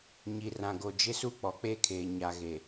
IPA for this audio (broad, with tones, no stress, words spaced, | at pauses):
ɲi˨rã˨ɡo˨ d͡ʒɪ˦su˦ k͡pɔ˨k͡peː˦kʰeː˨ ɲa˨ɣe˨